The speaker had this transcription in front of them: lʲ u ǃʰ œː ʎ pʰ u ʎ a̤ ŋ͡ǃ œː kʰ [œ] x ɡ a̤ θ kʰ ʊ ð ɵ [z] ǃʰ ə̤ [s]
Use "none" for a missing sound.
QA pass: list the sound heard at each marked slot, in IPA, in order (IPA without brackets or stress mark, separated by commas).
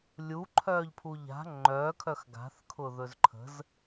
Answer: œ, z, z